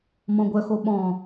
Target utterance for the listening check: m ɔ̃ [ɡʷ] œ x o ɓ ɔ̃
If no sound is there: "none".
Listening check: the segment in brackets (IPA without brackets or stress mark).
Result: ɡʷ